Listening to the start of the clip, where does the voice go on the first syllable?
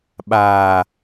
low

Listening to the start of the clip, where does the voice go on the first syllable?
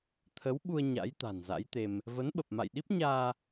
rising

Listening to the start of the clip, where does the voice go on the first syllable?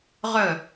falling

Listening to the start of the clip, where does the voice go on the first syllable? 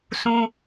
high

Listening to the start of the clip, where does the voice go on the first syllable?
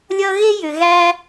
high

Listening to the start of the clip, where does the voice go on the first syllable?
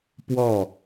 falling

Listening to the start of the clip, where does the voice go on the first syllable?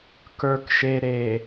low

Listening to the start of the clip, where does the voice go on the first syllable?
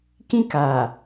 high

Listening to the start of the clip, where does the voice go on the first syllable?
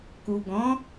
low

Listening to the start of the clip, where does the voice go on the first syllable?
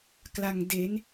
low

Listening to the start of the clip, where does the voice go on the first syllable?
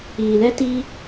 low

